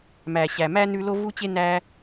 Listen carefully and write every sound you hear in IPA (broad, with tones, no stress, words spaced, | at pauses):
mæ˩ɕæ˩ mæ˥ nʉ˦lo˥ vu˥t͡ɕe˥ næ˦